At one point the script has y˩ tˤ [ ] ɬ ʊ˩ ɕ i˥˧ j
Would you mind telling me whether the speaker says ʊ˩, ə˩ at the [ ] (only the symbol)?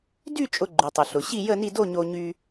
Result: ʊ˩